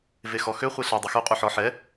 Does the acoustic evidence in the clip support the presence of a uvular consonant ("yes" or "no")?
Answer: yes